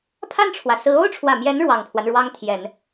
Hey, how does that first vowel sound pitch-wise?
falling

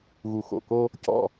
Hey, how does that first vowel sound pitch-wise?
low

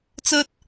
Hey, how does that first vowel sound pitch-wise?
high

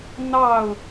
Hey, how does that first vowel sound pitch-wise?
falling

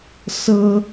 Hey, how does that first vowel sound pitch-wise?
high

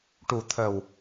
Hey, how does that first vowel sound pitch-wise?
low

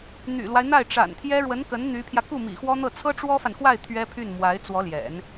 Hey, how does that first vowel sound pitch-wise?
low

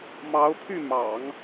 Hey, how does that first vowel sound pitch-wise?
rising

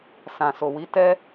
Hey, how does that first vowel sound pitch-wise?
low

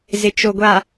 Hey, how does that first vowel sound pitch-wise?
low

